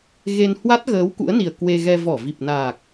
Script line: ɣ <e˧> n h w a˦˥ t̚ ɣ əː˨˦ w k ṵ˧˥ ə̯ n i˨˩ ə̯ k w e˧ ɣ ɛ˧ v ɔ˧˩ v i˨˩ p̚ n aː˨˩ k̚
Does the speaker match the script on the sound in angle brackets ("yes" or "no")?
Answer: yes